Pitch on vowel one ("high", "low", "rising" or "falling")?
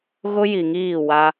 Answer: high